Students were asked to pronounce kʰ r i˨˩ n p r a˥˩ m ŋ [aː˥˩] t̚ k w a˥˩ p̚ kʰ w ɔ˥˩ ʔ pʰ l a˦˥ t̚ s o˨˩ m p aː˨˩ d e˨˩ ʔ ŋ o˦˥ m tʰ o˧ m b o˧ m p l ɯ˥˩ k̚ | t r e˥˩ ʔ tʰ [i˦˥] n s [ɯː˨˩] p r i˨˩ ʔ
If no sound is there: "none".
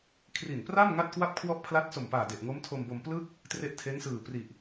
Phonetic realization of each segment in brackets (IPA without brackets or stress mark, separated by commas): a˥˩, e˦˥, ɯː˨˩